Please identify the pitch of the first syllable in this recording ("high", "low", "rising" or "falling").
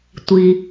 low